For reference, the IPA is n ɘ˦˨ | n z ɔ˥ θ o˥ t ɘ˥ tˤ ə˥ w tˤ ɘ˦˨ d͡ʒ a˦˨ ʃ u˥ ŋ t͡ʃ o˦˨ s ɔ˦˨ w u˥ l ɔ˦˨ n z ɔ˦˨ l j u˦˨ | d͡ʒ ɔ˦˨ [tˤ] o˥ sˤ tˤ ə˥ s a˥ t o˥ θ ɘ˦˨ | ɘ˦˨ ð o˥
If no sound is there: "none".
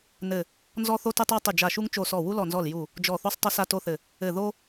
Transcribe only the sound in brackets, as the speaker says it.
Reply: θ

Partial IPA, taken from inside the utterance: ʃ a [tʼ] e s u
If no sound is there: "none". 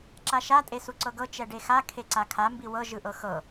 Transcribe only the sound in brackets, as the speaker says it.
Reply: tʼ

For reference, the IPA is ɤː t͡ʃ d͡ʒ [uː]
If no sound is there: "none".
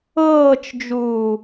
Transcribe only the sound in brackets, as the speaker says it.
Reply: uː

